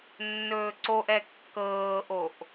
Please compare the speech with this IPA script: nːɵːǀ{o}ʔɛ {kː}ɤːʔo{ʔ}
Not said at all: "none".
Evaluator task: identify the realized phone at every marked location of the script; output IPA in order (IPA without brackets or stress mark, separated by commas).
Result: o, kː, ʔ